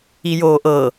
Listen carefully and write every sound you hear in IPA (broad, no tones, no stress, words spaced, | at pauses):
ijoːʔɤ